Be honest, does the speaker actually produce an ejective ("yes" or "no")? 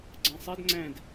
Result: no